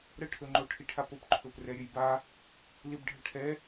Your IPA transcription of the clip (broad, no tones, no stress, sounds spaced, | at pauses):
ɾ ə ʈʰ ɵ ŋ͡ǃ o ʈʰ i ʈʰ a p o p ǃʰ ɵ p r ɛ ɾʲ ɵ j b a | l i b ɖʱ ə ʈʰ ɛ